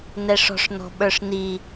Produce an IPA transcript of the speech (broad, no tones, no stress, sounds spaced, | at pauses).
n ɛ ʂ ɔ̤ ʂ n ɔ̤ ɓ ə˞ ʂ n i